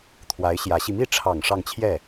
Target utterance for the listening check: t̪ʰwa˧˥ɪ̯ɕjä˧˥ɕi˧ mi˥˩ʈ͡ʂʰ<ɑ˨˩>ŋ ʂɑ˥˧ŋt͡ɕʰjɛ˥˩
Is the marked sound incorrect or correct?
correct